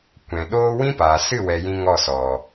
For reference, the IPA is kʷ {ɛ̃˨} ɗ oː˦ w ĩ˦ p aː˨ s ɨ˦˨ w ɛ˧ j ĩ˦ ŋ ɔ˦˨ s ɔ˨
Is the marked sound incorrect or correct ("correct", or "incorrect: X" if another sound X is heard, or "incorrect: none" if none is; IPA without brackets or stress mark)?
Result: correct